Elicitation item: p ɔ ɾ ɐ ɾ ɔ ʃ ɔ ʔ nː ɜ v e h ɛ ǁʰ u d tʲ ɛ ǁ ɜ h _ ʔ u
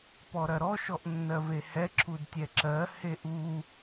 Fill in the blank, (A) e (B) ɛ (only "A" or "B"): A